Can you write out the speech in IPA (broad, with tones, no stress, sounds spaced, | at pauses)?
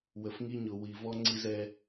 w ə˨ f ŋ i˦ ɲ ʊ˨ w i˨ v ɔ˦ ŋ͡ǀ i˦ z ɛ˦